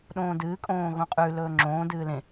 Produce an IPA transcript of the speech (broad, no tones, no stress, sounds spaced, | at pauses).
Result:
ɗ õː d ɨː kʼ õː ɣ õ qʼ ʉ l ɵː ŋ͡ǁ õː d ɨː l ẽ